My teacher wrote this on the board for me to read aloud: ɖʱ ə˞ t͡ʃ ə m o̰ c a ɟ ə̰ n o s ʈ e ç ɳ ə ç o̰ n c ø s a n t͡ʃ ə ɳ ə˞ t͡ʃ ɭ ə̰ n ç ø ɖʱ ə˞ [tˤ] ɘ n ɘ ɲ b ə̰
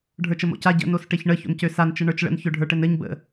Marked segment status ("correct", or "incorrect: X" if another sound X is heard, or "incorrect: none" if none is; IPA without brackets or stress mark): incorrect: ʈ